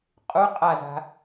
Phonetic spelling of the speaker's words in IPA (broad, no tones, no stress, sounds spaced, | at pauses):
qʼ u qʼ a z a̤